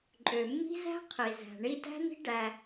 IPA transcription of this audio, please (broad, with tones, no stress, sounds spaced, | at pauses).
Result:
ǃʼ ø˨ mː i̤˦ z æ̤˦ qʰ i˨ z æ̤˨ ɳ i˦ d æ̤˦ n̪ i̤˦ ɖ æ˧